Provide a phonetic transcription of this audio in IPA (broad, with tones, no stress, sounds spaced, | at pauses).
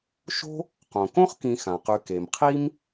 ʃ o̤˥ | q õ˩ k õ˥ χ k ĩ˨ x ã˩ q ʉ˨ k e˩ m qʰ i˥ m